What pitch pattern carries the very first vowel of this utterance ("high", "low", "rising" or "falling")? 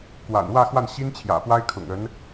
low